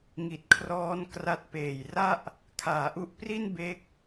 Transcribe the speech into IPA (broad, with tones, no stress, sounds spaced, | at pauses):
ŋ i˨˩ t̚ kʰ r ɔː˦˥ n k r a˦˥ t̚ p eː˨˩ j r a˥˩ ʔ | kʰ aː˩˦ ʔ u˦˥ ʔ p r i˥˩ n b e˦˥ k̚